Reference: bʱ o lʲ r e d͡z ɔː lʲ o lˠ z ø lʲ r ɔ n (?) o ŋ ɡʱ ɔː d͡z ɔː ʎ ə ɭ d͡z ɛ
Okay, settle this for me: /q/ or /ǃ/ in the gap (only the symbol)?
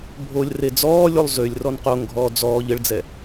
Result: q